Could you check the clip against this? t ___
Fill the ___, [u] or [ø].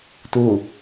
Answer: u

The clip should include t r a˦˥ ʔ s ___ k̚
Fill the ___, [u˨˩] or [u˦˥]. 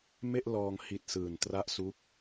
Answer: u˦˥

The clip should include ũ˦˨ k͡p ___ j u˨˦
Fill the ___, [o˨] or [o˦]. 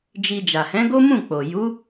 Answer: o˨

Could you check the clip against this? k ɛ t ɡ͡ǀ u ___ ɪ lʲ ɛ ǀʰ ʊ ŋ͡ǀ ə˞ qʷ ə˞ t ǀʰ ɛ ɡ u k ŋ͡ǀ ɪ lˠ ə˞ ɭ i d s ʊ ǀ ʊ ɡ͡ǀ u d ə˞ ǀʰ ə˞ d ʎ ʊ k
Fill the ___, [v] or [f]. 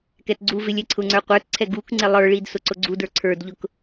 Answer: v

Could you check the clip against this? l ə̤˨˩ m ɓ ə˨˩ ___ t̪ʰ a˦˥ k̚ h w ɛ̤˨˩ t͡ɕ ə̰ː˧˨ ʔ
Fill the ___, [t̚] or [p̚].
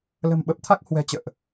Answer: p̚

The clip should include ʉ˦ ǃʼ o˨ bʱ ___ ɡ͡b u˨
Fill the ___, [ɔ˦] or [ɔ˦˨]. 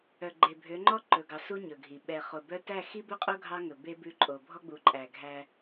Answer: ɔ˦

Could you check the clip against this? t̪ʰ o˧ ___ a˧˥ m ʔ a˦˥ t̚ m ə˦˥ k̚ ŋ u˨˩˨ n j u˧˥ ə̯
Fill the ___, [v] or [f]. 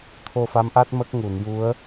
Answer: f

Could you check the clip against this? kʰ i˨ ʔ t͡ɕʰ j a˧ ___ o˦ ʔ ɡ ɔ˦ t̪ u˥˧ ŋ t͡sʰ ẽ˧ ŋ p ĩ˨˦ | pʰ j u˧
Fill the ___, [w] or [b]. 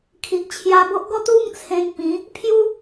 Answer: b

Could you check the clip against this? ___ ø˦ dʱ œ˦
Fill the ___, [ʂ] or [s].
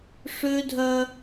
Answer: ʂ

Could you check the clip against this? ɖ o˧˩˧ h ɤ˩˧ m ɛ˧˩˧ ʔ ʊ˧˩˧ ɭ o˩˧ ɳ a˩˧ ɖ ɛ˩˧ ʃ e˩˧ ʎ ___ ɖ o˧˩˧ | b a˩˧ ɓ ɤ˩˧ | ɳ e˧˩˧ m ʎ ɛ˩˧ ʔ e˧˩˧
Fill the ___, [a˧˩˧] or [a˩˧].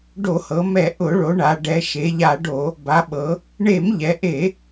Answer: a˧˩˧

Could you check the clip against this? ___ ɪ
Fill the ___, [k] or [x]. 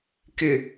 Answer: k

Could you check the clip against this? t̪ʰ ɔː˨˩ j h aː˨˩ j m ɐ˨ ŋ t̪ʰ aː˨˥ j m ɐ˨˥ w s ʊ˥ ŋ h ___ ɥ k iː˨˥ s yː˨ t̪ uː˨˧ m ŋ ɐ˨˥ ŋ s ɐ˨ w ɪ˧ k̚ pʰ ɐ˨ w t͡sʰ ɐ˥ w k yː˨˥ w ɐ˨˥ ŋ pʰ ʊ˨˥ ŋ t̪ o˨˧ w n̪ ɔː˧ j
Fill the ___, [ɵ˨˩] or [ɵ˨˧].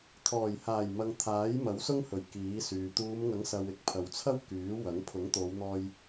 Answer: ɵ˨˩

